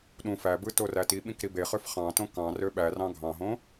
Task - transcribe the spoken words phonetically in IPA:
ɗũ fæbɯ torætiɓĩk ɾibeχøf χɑ̃tõ kɑ̃ røɓærɑ̃ ɡʱɑ̃ɦõ

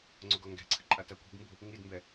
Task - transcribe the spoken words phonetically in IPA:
ŋ͡ǀoɡɔŋɡɛ̤ǀʰɨ ǃʼatakʷi̤ɡmbṳ | ŋidmbɛ

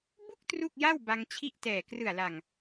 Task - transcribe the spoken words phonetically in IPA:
bu˥˩k̚ tru˥˩k̚ja˥˩w ba˧ŋt͡ɕʰi˥˩ʔtɛː˨˩ krɯ˨˩a̯la˨˩ŋ

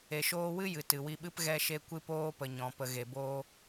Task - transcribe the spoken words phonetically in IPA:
e˨ʃoː˧wɨ˦jɨ˨ tɨ˨wi˧ɓɨ˦p ɣɛ˧ʃe˧ kʷɨ˧poː˧pə˨ ɲɔ̃˨pə˨ ɣe˨boː˧

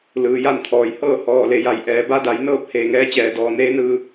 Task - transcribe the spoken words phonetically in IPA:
lɯː˩ja˥˨nt̪ʰɔː˩jhɤː˥˨ hɔː˧˩le˩ja˩˧j ʔɛː˩ba˧˥da˩˧j nɤː˥˨p̚ heː˧˩ŋɛː˧t͡ɕɛː˧˩dɔː˧˩ neː˧˥nɯː˧

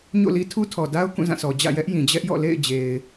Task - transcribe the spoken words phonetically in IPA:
ɲo̰˦˨li˦ tʰu˦tʰɔ˨da˦ʊ̯ kũ˦˨zã˦˨sʰɔ˨ d͡ʑä̰˦˨jɛ˦ʔjĩ˨ d͡ʑɛ˦ʔjɔ̰˦˨lḛ˦˨ɪ̯d͡ʑe˨ɪ̯

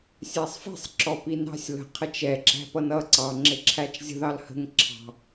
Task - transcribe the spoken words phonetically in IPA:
sʲæsˤfi̤sˤ ǁɔpinɑ̤sʲ lə̤ qʰət͡ʃɛ ǁæ̤pʌnʌ ǀɑ ŋ͡ǁɪǁʰæt͡ʃzʲə̤ ðɑlhə̤ŋ ǁʰɑ̤

